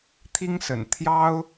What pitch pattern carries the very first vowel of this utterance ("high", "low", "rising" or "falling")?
high